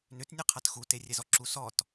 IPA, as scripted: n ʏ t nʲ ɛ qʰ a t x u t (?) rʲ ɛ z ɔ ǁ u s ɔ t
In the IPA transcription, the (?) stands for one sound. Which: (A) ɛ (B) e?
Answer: B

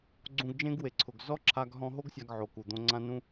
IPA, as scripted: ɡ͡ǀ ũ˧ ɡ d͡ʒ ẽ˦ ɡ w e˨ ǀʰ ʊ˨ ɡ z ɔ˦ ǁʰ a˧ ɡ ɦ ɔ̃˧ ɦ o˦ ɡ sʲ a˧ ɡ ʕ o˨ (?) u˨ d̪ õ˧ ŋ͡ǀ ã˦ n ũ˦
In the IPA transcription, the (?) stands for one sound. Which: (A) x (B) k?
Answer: B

